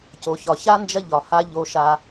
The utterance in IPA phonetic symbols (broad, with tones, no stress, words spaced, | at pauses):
co˨çɒ˨ça˦ nd͡ʒɐ˦ʎɒ˨ ha˦ ʎo˦ʃa˦